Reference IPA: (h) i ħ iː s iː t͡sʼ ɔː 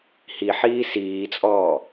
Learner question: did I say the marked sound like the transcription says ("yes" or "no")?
yes